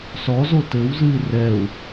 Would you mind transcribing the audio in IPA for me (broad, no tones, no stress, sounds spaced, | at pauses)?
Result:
s ɔ z o t ɘ w z ɨ i̯ r ɛ u̯